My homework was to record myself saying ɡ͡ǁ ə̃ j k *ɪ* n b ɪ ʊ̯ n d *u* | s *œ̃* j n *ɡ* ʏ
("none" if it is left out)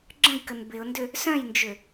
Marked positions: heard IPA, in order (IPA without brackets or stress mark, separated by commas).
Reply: ə, ʏ, œ̃, d͡ʒ